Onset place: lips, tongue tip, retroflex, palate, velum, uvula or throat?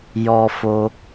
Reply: palate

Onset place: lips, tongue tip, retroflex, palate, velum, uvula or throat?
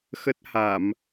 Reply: velum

